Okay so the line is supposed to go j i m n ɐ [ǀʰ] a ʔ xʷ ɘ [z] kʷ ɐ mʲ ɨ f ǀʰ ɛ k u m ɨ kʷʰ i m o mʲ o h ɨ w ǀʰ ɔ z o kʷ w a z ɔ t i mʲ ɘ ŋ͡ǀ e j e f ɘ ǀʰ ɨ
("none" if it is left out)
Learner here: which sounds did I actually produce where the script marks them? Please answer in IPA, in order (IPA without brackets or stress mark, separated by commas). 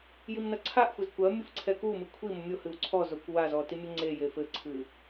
ǀʰ, z